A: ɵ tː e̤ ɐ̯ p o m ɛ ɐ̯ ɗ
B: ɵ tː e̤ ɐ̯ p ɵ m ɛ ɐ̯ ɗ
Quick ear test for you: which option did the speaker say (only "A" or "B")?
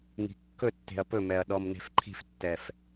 B